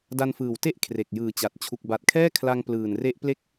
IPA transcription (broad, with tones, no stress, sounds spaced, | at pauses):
d a˧ n f ɯː˨˩ w t e˦˥ ʔ kʰ r e˨˩ k̚ j ɯː˨˩ t͡ɕ a˨˩ t̚ t͡ɕʰ u˨˩ k̚ b a˨˩ t̚ kʰ ɛː˥˩ kʰ l a˧ ŋ p l ɯː˨˩ n r e˦˥ ʔ p l e˥˩ k̚